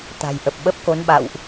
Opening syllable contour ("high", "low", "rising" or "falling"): low